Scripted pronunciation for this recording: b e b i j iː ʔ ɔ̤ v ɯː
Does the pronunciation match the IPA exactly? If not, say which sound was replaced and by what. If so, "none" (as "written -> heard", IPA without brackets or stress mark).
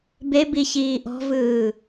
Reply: j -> ç